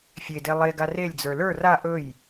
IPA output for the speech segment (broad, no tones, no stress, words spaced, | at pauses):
fʲede lˠeɡa relʲd͡zə˞ lə˞ ra ʔɵj